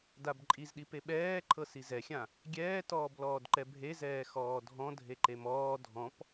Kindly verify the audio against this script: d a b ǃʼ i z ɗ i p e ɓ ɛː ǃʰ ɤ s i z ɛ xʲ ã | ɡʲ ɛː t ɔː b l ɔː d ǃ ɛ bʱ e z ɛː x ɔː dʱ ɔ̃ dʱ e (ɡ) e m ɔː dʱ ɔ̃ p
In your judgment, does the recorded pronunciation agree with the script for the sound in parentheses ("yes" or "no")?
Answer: no